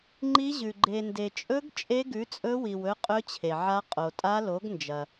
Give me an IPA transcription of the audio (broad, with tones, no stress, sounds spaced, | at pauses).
ŋ͡ǃ i˦˥ ʑ ʉ˨ ɡ͡ǃ e˨ n d e˨ t͡ʃʼ ɵ˦˥ ɡ t͡ʃʼ e˦˥ ɡ ʉ˨˥ t͡sʼ ɵ˦˥ w i˨ w ɵ˦˥ qʼ ɵ˦˥ t͡ɕʰ e˨ ʕ a˦˥ qʼ o˨ tʼ a˦˥ l o˨˥ ɡ n d͡ʒ ɐ˨